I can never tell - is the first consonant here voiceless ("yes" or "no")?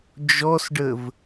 no